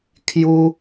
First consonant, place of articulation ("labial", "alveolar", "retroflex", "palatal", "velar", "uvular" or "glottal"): velar